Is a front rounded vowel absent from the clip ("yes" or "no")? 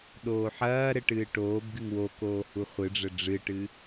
yes